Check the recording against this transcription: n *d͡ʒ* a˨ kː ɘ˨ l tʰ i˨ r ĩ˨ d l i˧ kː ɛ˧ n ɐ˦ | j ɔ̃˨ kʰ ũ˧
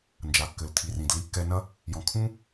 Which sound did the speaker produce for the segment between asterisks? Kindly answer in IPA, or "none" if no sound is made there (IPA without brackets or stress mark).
d͡ʒ